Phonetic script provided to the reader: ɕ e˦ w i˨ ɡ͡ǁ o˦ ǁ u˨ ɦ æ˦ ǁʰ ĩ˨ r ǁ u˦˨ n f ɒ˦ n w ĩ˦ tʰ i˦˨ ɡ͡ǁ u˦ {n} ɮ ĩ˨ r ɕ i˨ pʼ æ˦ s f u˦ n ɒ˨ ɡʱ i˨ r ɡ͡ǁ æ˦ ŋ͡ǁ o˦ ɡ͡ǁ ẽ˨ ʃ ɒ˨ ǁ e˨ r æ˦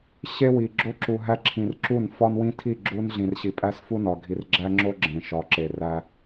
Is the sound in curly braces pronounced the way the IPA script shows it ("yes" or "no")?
yes